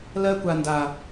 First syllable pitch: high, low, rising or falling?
high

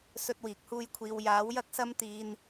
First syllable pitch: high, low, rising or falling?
high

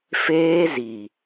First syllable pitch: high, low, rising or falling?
high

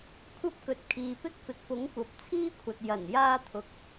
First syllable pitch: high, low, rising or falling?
high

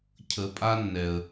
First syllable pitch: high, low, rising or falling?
low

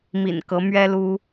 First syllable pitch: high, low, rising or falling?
low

